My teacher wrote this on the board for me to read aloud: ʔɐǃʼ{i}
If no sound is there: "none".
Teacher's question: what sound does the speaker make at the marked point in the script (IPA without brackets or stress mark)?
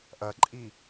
i